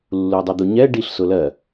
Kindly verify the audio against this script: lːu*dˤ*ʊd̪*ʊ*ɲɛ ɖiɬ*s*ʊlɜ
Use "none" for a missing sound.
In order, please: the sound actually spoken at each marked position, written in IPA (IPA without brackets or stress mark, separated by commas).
dˤ, u, s